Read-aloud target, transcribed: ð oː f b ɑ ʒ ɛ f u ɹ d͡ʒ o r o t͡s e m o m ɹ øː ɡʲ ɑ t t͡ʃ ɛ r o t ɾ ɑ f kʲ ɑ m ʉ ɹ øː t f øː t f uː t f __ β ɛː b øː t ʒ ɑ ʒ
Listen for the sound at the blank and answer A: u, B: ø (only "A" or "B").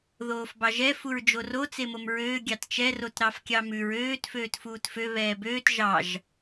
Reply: B